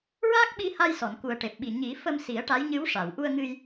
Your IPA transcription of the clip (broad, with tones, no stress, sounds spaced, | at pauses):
ɹ aː˦˥ k̚ ɓ i˧ h a˧ j s ɔ˨˩˨ n k u˨˩ ə̯ ʈ e˨˩ p̚ ɓ i˨˩ ɲ i˨˩˦ f ə˧ m s i˨˩˦ ə̯ ʈ a˧˥ j ɲ ɨ˧˥ w ʂ a˨˩˨ w ʔ u˧ ə̯ ŋ ɨ˧ j